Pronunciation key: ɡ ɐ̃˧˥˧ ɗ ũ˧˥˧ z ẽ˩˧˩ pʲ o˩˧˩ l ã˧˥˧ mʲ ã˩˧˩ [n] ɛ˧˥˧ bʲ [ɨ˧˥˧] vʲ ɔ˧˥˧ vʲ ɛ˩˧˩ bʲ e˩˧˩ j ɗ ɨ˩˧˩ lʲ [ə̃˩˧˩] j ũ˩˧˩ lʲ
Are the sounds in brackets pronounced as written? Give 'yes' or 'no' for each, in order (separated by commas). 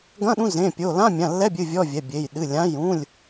no, no, no